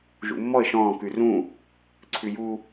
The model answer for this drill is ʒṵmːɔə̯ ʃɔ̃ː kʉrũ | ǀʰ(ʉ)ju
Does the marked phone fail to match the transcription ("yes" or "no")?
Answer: no